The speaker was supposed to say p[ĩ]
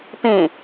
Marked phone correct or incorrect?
correct